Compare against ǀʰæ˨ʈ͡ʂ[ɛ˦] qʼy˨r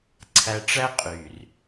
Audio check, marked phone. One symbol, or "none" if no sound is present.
æ˦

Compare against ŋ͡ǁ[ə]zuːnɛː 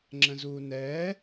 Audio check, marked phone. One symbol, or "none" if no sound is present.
ə̃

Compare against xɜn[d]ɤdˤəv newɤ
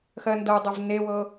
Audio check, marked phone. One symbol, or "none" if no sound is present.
d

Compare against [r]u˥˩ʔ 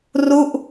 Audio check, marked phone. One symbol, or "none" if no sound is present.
r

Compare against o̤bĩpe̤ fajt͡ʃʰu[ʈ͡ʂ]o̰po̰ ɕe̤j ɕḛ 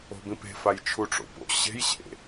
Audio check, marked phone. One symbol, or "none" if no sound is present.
ʈ͡ʂ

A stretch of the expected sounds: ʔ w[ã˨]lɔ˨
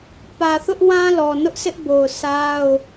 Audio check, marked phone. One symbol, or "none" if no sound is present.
ã˦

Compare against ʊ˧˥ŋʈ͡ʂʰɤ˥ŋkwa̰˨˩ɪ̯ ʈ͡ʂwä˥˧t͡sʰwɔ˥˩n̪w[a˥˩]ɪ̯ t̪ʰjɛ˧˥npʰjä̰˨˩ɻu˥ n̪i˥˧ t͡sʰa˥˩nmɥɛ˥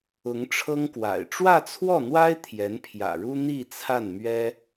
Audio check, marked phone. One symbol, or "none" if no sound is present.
a˥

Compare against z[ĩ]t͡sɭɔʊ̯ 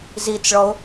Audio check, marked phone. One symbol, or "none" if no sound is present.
i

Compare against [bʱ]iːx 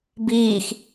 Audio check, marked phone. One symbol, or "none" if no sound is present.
b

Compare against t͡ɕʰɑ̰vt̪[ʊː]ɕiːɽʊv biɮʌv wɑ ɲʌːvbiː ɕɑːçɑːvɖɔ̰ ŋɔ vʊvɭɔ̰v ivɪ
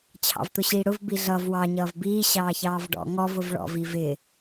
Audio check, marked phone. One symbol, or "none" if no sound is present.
ʊ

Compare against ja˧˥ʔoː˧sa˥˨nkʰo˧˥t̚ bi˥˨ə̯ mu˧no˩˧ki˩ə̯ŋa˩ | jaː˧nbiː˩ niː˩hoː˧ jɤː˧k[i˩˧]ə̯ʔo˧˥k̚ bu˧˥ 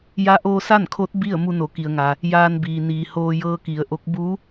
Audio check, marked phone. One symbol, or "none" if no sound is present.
i˩˧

